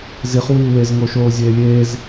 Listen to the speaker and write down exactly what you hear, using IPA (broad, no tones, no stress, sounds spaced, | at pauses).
z i χ w iː w e z ŋ o ʃ oː zʲ eː lʲ eː z